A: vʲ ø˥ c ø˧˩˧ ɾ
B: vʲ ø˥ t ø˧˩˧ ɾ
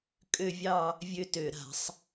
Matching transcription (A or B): B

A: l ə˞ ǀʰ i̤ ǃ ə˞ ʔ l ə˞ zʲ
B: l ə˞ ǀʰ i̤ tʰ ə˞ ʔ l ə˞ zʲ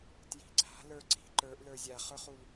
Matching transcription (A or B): A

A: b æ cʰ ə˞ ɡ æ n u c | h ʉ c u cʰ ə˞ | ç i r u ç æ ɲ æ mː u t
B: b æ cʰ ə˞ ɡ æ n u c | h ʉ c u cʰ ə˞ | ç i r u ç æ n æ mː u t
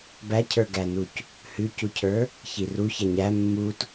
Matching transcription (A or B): A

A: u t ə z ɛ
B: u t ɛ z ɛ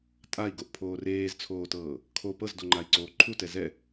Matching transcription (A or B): B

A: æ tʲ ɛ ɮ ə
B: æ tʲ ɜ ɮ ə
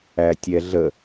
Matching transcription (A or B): A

